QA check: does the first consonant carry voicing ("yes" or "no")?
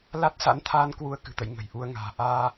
yes